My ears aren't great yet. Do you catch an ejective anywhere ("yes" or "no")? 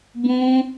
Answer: no